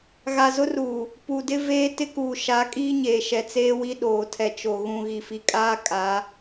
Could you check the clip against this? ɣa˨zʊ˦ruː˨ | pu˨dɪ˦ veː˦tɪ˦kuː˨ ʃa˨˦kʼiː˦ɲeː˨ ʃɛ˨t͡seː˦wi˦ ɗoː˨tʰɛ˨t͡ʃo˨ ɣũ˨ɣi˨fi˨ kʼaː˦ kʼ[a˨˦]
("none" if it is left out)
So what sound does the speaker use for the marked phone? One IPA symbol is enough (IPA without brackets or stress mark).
a˨˦